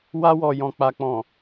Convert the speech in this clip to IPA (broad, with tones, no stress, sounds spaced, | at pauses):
w a˧ w ɔ˨ j ɔ̃˨ k͡p a˨ k͡p ɔ̃˨